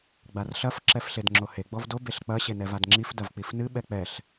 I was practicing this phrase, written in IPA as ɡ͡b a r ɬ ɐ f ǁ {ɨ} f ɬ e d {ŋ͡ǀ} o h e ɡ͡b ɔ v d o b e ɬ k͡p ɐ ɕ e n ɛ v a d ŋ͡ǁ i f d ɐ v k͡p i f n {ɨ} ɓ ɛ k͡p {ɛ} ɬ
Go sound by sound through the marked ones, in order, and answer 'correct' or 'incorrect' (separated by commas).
incorrect, incorrect, correct, correct